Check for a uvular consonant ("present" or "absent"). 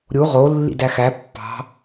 present